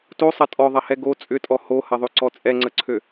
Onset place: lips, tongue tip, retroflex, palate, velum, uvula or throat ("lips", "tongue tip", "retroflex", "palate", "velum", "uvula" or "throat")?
tongue tip